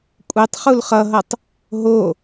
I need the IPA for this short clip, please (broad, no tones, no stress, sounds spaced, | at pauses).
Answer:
kʷʼ e tˤ χ u l χ ʌ ɦ ʌ tˤ | ɦ o